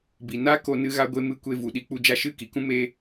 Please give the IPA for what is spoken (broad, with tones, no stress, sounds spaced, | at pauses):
b i˨ n a˦ k o˧ n ɨ˦ ɣ a˦ ɡʷ e˦ m ɨ˧ kʷ e˧ v u˨ ɗ i˧ k͡p u˧ d͡ʒ a˧ ʃ ɨ˦˨ k i˨ k ũ˦ m e˦